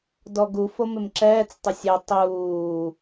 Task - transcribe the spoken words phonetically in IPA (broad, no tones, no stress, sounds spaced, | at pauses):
d ɔ ɡ u f o m ɪ m ǁ ɛː t͡s tˤ ɪ sʲ ɛ tˤ uː